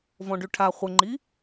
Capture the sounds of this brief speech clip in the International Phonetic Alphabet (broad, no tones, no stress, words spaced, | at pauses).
vɔ̃ɖyʈʰa χʷəŋ͡ǃi